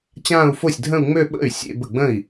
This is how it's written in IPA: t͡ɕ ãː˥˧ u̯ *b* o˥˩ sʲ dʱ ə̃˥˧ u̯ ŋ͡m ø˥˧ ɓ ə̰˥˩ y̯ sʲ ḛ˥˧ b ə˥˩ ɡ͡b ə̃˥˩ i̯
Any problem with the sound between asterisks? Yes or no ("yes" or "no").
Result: yes